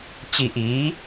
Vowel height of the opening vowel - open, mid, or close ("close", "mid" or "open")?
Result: close